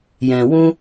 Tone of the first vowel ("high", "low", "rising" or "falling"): low